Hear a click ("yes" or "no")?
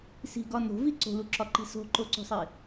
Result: yes